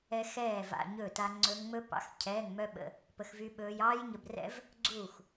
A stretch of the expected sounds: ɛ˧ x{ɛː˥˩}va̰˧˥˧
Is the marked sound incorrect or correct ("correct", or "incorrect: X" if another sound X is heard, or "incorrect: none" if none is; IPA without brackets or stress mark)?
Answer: correct